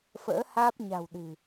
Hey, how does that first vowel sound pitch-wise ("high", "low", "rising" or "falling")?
rising